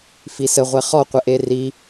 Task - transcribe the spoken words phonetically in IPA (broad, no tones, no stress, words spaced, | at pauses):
fisə ʁʷɛχɔ qʷəʔeri